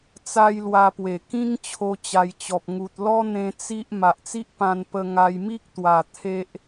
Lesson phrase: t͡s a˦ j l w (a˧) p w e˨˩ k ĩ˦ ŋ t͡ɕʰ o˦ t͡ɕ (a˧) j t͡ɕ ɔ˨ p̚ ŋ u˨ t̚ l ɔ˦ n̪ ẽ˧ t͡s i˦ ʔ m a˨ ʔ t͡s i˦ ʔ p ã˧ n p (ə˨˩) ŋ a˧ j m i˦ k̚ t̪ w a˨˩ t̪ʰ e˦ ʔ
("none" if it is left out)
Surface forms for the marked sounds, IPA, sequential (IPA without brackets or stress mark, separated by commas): a˧, a˧, ə˧